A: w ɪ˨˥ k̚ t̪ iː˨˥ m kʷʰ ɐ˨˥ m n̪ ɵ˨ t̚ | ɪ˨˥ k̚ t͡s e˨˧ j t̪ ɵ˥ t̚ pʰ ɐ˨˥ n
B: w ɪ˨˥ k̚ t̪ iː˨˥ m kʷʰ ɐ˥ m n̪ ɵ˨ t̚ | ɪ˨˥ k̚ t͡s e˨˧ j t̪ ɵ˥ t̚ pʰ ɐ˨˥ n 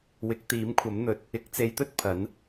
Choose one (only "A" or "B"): A